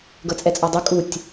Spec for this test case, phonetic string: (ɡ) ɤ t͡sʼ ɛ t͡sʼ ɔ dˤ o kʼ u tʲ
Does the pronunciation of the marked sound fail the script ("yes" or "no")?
no